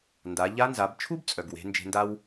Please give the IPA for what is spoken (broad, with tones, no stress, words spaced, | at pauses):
nda˩˧ ʎa˧˥nza˩˧bt͡ʃʰu˥b t͡sʼœ˩ɡwe̤˩˧ nd͡ʒe̤˧nda˥w